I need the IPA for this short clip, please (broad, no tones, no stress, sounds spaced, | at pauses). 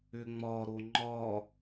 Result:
ʏ ŋ͡m ɒ ɾ o ŋ͡ǃ ɒ